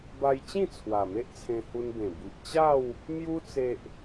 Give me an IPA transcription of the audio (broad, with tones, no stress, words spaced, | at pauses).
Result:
ba˧jt͡ɕĩ˥˧ t͡sʰwa˨˩me˦ʔt͡sʰẽ˧ hu˧nbẽ˨˩ bi˨ʔt͡ɕa˥˧w | mju˧t͡se˨ʔ